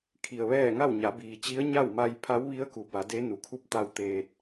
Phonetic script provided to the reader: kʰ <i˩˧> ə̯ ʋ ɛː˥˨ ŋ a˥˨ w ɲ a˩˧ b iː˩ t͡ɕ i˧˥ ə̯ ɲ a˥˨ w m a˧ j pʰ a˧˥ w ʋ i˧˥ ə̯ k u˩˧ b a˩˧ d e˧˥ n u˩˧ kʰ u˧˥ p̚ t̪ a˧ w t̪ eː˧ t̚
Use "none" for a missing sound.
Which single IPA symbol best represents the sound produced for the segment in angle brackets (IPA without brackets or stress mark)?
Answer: i˩